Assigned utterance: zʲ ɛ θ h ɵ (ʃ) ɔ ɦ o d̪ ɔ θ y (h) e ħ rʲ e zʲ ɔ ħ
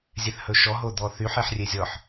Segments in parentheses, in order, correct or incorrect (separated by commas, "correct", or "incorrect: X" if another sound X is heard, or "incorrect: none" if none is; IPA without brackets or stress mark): correct, incorrect: ħ